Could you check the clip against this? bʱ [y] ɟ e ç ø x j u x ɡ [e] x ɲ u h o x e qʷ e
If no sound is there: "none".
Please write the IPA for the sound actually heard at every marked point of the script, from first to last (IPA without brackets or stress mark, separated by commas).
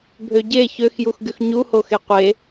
ø, y